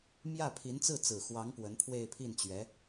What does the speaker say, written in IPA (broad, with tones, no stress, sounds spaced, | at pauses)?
m j ä˥˩ pʰ i˧˥ n t͡s ɹ̩˥˩ t͡s ɹ̩˨˩ x w ɑ˧˥ ŋ p w ə˧˥ n pʰ w e˥˧ ɪ̯ pʰ i˥˩ n t͡ɕ ɥ ɛ˧˥